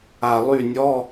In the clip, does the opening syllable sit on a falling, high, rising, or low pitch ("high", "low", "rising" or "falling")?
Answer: low